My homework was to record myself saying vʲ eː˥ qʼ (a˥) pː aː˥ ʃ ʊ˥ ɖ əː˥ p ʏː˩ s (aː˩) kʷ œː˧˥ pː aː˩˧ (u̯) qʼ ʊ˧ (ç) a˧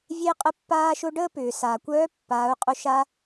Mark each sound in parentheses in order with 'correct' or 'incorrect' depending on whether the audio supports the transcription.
incorrect: ə˥, correct, correct, incorrect: ʃ

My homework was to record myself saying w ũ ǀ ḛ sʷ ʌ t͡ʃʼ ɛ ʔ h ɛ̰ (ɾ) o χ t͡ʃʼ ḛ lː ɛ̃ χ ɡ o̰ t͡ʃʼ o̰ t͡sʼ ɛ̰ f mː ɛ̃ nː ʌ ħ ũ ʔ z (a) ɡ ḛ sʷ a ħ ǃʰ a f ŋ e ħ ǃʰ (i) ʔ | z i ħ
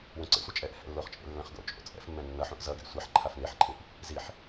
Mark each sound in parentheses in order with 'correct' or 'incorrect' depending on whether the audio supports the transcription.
incorrect: lː, incorrect: ʌ, incorrect: ĩ

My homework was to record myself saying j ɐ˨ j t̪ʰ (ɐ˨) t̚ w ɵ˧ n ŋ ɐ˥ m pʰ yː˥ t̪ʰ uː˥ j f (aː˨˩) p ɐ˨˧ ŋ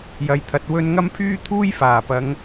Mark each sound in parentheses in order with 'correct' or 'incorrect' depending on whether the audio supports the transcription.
correct, correct

